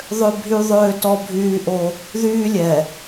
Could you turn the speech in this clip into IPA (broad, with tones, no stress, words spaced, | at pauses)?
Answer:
ðˤø˦bʱy˦ ðˤøː˦tɔ˦ bʱyː˦ʔo˦ | ðyː˦lʲɛ˨